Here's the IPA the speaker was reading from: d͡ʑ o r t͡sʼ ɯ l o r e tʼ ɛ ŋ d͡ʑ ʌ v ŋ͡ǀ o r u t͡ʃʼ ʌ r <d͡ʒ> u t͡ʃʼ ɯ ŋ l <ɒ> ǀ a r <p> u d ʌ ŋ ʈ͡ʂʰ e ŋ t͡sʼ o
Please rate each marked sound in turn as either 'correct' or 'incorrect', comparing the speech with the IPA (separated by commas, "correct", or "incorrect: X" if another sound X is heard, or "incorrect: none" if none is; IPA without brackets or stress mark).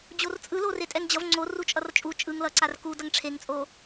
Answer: incorrect: t͡ʃʼ, incorrect: ʌ, incorrect: k